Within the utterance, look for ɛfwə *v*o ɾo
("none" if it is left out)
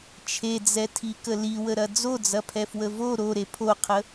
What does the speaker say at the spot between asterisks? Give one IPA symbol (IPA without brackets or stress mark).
v